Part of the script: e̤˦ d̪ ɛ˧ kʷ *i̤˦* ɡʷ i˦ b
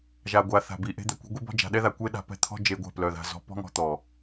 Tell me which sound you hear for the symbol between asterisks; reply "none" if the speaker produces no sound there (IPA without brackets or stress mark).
i̤˦